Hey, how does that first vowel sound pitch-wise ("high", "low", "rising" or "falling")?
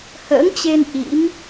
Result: rising